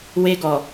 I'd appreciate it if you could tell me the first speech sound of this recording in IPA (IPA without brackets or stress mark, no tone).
w